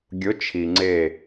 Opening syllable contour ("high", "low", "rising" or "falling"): rising